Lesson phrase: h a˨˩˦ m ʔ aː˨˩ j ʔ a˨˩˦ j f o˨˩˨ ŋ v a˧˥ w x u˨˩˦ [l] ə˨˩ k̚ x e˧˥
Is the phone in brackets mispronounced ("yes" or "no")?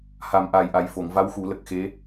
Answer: no